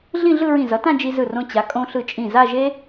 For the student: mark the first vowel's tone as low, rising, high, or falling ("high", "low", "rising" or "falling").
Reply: falling